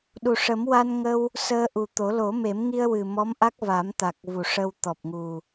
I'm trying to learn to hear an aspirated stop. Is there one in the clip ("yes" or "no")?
no